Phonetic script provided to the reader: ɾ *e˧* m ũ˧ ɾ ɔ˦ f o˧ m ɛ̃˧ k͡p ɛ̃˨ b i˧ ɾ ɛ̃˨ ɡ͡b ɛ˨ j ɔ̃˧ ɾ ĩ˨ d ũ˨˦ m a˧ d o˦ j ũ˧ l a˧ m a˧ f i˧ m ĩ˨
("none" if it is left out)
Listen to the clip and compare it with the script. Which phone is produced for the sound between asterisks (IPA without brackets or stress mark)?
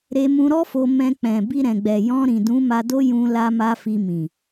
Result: e˧